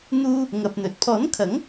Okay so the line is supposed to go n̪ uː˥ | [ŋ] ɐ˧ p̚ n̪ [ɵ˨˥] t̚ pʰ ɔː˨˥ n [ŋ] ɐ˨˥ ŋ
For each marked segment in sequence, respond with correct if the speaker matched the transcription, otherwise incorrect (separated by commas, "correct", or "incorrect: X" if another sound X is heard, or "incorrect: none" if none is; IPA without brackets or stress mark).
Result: correct, correct, incorrect: kʰ